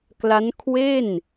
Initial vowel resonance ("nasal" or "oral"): oral